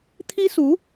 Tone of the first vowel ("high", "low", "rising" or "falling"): high